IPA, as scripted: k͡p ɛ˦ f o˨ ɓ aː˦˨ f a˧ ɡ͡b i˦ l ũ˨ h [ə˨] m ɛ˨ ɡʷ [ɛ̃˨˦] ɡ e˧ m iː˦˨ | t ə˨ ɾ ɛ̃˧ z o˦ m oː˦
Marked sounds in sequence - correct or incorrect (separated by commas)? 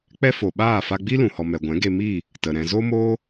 incorrect, correct